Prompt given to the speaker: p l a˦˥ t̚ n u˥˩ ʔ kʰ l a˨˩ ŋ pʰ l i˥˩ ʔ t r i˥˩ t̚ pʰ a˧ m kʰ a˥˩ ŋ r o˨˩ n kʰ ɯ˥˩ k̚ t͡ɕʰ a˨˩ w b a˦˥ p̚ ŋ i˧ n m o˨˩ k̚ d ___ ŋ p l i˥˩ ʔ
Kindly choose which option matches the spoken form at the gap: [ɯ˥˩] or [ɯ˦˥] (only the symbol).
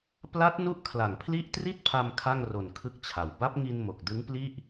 ɯ˦˥